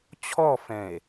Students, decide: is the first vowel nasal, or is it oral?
oral